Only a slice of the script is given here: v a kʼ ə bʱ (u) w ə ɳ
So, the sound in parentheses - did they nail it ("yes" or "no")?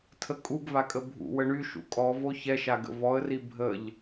no